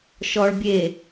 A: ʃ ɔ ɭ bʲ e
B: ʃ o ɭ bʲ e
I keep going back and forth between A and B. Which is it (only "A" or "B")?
A